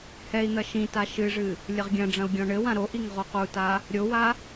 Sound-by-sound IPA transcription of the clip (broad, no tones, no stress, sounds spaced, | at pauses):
h ɛ i̯ n̪ ɐ ʃ ĩ t a ʃ ɨ ʐ ɨ | lʲ ɘ ʁ ɡʲ ɐ̃ ɖ͡ʐ ɐ̃ u̯ ɡʲ ɔ̃ ɳ ɘ w ã ɾ o ʔ i ŋ ʁ o q u t a | ɾʲ o w a